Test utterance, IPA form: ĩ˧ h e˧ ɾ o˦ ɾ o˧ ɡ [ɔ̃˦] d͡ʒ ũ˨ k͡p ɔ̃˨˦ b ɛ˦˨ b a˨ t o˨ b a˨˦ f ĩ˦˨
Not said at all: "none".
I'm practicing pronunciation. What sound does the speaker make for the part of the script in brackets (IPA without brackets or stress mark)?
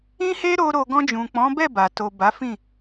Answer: ɔ̃˧